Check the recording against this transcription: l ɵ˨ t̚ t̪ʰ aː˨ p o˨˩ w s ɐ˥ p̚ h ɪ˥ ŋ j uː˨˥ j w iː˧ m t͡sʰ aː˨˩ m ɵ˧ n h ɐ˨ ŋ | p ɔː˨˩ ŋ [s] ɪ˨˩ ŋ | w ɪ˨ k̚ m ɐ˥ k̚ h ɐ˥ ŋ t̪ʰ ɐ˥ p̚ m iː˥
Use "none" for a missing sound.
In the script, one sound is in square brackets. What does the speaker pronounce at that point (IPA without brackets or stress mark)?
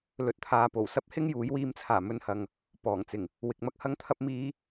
t͡s